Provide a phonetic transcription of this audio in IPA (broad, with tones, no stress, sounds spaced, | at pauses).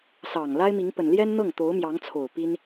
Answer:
s ɑ˨˩ ŋ l a˥ ɪ̯ m i˧˥ ŋ p ə˨˩ n l j ɛ˥ n n̪ ɤ˥˩ ŋ t̪ o˧˥ ʊ̯ m j ɑ˧˥ ŋ t͡sʰ o˨˩ ʊ̯ p i˥ n